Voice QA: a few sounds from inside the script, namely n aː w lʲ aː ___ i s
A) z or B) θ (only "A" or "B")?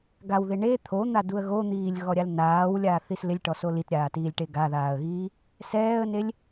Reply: B